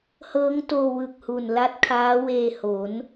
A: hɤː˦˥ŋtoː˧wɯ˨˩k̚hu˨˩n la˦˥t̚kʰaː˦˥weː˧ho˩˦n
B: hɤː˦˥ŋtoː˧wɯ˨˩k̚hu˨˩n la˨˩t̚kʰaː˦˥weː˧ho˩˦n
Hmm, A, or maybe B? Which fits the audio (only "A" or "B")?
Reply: A